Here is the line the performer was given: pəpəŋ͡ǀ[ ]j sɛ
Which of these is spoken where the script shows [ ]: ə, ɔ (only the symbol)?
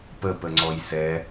ɔ